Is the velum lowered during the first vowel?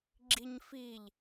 no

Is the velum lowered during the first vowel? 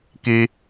no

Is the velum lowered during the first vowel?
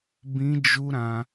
yes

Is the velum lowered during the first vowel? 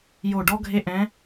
no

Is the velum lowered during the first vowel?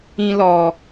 yes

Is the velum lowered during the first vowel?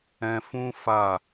yes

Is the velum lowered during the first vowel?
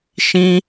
yes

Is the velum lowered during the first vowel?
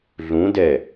yes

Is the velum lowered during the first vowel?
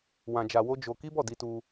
yes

